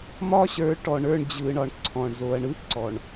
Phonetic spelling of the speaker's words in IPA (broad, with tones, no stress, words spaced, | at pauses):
mɒ˦ɕə˞˨˦ ʈɔ˨ɳə˞˦˨ɳd͡ʑɯ˨ɳɒ˨ɳ ǀʰɔ̃˨ɳzo˨ɐ̯ ɳɯ˦ǀɔ˨ɳ